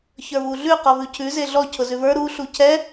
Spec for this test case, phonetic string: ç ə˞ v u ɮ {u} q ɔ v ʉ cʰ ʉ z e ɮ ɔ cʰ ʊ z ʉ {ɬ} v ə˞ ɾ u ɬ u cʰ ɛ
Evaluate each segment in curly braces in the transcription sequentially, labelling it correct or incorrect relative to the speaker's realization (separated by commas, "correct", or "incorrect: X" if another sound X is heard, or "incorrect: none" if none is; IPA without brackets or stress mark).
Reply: incorrect: ʉ, incorrect: none